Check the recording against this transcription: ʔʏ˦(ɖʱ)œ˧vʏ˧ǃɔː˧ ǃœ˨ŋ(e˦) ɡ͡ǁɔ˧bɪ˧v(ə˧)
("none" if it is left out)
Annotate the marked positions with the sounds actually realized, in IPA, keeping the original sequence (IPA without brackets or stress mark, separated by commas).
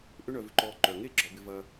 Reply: ɳ, e˦, ɐ˧